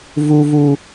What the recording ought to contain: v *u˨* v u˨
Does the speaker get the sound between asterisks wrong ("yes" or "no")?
no